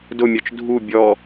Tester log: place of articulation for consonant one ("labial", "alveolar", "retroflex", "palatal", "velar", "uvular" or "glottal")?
alveolar